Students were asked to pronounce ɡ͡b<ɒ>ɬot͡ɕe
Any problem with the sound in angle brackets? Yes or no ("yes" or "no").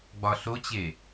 no